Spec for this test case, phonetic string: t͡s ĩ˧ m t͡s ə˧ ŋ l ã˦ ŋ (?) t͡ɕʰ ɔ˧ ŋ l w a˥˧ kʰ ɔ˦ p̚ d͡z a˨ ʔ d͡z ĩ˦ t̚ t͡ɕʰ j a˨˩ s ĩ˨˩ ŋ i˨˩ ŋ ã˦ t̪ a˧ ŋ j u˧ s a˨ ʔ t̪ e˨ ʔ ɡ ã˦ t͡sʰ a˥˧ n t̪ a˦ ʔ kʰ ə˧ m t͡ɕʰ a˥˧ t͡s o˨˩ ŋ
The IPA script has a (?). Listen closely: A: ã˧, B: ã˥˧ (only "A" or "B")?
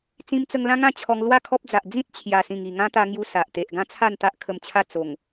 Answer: B